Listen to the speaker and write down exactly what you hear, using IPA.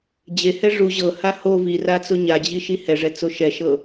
d͡ʑ e h ɛ ʐ u ʑ ɤ h a h o v i r a t͡s o ɲ a d͡ʑ i ʃ i h ɛ ʐ ɛ t͡s o ʃ ɛ ʃ ɤ

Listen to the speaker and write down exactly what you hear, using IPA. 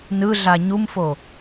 n ɯ ɮ a ɲ u m f o

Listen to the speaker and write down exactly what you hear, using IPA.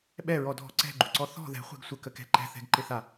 ɓ ɛ ɹ ɔ dʱ ɔ̤ ǀ ɛ̤ ɡ͡ǃ u ǀ ɔ θ ɔ̤ ð ɛ̤ χʷ ɛ̤ ɡ sʷ ə k ə k ɛ̤ ǃ ɛ̤ θ ɛ̤ ɡ ǃ ɪ θ a

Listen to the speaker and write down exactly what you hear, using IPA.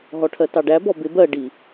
ɦ ɔ ʈʰ ɜ t ɑ ɖ æ b ɔ b ɪ b ɜ ɖ i

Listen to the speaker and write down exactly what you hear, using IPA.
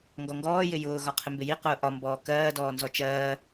ŋ ɡ ɔ ŋ ɡ ɔː j ɪ j ʊː ɣ ɒ qʰ ɪ m b ɪ j i q ʊː ʔ ɒ m b ɔː k ɜː d ɔː n z ɔ t͡ʃ ɜː

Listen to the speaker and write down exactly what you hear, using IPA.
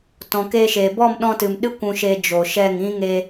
t ɔ̃˨ k e˧ ʃ e˨ b ɔ˦˨ m ɗ ɔ̃˧ t ɨ˨ m ɗ ɨ˦ kʷ ũ˧ ʃ e˧ d͡ʒ oː˨ ʃ ɛ˦˨ ŋ ĩ˦ ŋ e˧

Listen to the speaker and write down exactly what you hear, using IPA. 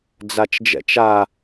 d͡z a t͡ʃ d͡ʒ ɛ̰ t͡ʃ a

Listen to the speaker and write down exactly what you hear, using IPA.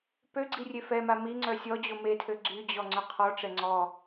p ø ɡ͡ǀ i rʲ e f ɛ m a m i ŋ͡ǀ œ sʲ ɔ d͡ʑ o m e tʰ ø ɡ͡ǀ y d͡ʑ ɔ ŋ͡ǀ œ qʰ ɔ ʈ͡ʂ ɛ ŋ͡ǀ ɔ

